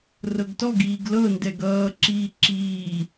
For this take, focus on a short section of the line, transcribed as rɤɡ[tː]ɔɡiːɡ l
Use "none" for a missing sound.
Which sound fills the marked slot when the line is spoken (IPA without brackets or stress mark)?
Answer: t